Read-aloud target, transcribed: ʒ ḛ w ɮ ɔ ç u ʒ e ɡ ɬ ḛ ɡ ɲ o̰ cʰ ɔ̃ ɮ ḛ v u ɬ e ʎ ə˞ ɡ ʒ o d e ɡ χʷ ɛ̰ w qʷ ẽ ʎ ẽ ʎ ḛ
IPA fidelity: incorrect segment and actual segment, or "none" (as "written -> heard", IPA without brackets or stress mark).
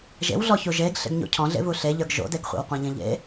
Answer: o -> o̰